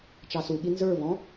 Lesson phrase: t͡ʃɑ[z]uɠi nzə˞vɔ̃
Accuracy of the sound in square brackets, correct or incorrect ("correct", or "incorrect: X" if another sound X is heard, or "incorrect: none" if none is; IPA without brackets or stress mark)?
incorrect: s